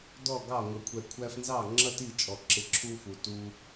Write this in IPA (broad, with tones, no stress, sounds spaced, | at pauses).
d ɔ˦˨ ɡ ɑ˦˨ ŋʷ ə˨ kʷʰ ɛ˨ kʷʰ æ˧ f n z ɑ˦˨ ŋ͡ǁ ʌ˦ t i˦˨ t͡ʃʼ ɔ˨ ǁ ɪ˧ ǁʰ u˦ f u˨ t u˦